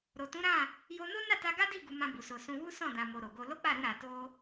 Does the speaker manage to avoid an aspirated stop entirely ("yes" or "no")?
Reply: yes